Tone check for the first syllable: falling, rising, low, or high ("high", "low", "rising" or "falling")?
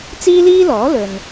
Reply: high